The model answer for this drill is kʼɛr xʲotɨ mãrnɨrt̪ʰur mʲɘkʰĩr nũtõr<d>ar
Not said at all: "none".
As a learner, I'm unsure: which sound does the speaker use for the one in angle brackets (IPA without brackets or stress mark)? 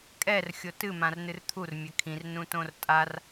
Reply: tʼ